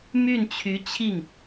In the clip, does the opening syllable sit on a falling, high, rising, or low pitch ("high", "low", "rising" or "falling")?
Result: falling